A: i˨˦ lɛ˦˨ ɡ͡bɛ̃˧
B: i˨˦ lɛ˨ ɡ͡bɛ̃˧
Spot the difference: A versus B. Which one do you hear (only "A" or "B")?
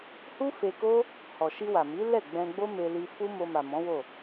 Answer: A